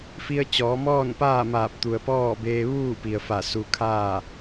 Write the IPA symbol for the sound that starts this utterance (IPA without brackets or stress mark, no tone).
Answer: f